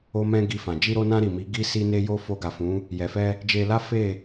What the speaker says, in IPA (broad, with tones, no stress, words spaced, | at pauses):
o˧mɛ̃˧ ɡi˧fã˨ d͡ʒi˧ɾo˧nã˧ ɾi˨mi˨˦ ɡi˧ si˦ne˦jo˦ fo˧ɡa˨fũ˨˦ | jɛ˨fɛ˧ | d͡ʒe˧la˦ fe˦˨